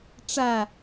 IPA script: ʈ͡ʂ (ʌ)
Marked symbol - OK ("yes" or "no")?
no